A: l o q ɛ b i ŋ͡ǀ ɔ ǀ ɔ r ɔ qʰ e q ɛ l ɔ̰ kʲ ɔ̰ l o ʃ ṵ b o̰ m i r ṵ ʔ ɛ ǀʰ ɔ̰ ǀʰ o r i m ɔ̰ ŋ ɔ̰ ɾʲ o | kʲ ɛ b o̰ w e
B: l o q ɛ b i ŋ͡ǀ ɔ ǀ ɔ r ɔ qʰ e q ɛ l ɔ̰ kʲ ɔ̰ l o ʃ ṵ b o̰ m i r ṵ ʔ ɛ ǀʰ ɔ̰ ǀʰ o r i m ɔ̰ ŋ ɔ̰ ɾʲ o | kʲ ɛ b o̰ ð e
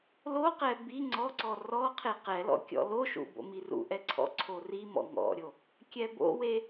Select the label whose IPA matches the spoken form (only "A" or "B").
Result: A